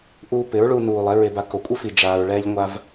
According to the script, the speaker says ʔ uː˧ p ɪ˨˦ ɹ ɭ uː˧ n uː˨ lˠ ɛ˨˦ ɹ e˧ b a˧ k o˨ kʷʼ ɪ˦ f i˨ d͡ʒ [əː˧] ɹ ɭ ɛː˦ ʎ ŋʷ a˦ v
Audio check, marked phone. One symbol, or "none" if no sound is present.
aː˧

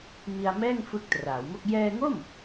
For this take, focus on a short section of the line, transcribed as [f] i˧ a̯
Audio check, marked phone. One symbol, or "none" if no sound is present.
m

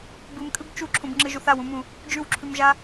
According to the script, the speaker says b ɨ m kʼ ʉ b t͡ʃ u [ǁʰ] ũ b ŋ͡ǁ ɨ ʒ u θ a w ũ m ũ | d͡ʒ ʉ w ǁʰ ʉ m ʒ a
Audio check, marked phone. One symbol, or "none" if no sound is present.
ǁʰ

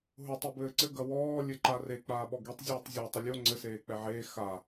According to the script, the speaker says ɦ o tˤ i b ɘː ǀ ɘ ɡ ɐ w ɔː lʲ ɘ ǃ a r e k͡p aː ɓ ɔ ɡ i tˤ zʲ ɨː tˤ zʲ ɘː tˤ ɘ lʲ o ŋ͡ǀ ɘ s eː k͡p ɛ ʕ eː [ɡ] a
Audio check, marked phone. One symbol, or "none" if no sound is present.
x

